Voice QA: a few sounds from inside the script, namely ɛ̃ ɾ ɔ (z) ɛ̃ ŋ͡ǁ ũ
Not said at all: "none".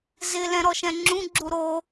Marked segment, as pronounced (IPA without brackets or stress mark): ʃ